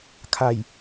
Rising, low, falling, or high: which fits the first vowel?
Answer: low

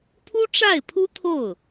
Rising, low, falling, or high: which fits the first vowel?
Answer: high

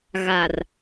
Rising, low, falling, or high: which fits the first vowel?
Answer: low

